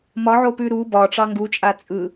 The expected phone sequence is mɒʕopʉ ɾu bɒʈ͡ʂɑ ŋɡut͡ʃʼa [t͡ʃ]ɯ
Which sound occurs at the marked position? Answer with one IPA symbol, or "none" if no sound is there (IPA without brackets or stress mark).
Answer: t͡sʼ